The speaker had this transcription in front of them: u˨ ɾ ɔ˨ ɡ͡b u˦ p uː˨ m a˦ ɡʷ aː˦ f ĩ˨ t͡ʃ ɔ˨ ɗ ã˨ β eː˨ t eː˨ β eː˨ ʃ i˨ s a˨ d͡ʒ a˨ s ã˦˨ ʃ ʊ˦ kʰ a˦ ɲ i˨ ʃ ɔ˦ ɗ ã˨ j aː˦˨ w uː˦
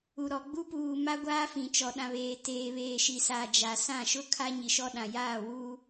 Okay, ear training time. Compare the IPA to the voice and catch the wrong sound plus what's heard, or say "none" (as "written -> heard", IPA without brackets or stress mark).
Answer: none